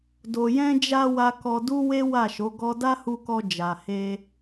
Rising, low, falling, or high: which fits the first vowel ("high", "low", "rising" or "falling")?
low